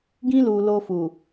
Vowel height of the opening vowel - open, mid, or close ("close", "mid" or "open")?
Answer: close